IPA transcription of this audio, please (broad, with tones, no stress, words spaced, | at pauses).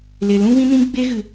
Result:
le˨ lũ˦vĩ˦nĩ˦ ɡ͡be˦ɣɨ˨